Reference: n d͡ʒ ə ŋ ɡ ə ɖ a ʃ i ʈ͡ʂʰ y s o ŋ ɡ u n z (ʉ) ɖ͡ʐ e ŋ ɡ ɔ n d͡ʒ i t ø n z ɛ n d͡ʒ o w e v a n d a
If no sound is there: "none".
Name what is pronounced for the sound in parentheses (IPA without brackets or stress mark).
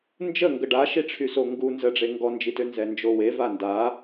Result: ə